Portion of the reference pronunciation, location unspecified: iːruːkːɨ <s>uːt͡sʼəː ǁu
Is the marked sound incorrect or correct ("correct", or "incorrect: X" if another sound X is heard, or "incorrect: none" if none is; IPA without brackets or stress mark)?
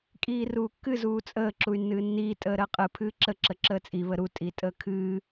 incorrect: z